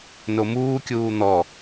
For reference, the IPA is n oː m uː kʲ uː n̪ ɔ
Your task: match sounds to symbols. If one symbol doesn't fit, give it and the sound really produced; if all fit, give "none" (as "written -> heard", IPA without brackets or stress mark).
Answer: oː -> o